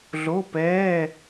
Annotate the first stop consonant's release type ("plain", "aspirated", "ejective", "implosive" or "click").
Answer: plain